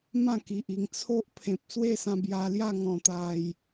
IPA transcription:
m ã˥˧ k i˨ ʔ i˨˩ ŋ t͡sʰ o˦ ʔ pʰ ẽ˨ p̚ s w e˥˧ s ã˧ b j a˧ l j a˥˧ ŋ ɔ̃˨˩ t̪ a˨˩ j

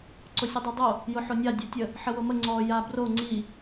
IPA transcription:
ǀ ʊ sʲ ə dˤ i dˤ o | j ʊ ħ o nʲ a dʲ o tʲ ə | ħ ə w o m ə ŋ͡ǀ ɔ j a b r o ŋ͡ǀ i

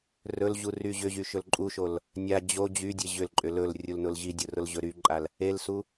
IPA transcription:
r ɵ l ʑ u r y ʑ ʏ ʑ y ʃ ɵ l ǃʼ u ʃ o l | nʲ a d͡ʑ o d͡ʑ y dʲ e ʑ ʏ l ǃʼ ʏ l ɵ l rʲ u l n ʊ l ʑ i dʲ ʊ r ʊ l ʑ ɵ ɾ y ǃʼ a l | e l s u

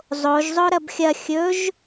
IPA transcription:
zˤ o ʒ zˤ o ɾ ɐ b xʲ ɐ xʲ ɵ ʒ

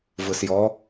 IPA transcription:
v ɯ s j ɔ

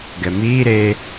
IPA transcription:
ɡ ɛ m iː ɾ e

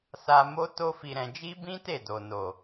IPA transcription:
s a˧ m o˦ t o˦ f i˧ ɾ ɛ̃˧ d͡ʒ i˦ b ĩ˦ t e˦˨ d o˨ n o˨

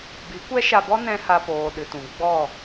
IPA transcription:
b i˨˦ kʷ ɛ˦ ʃ a˧ b ɔ˦ n ɛ̃˦ h a˧ p oː˨ ɗ ɨ˨ t ũ˨ ɡ͡b ɔ˦˨

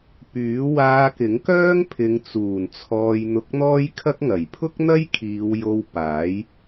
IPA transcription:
p yː˨˥ w aː˧ k ɪ˨˥ ŋ k œː˥ ŋ pʰ ɪ˨˧ ŋ t͡s uː˨˩ n t͡sʰ ɔː˧ j n̪ ʊ˧ k̚ n̪ ɔː˥ j kʰ ɐ˥ k̚ ŋ ɐ˨˩ j pʰ ʊ˥ k̚ n̪ ɐ˥ j kʰ iː˨˧ w j o˧ w p aː˨˥ j

